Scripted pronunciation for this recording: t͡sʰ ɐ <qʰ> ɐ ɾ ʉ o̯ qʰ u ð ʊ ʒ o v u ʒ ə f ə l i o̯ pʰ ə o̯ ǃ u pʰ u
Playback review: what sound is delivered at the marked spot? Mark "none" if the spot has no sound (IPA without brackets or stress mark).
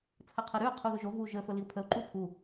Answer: qʰ